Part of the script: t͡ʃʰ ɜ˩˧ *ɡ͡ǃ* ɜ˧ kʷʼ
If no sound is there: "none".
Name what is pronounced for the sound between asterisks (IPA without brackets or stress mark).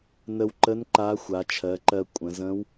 ǃ